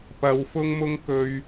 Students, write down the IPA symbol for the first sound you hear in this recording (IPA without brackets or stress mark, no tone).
p